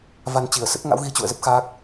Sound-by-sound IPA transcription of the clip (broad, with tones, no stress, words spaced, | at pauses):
va˧nt͡ɕi˧˩ə̯ sə˦˥t̚ŋa̰˧˥wɣi˨˦ t͡ɕṵ˧˨ə̯zə˦˥p̚ xaː˦˥k̚